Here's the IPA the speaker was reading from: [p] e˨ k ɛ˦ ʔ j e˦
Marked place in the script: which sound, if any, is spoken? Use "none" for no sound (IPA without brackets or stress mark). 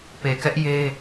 p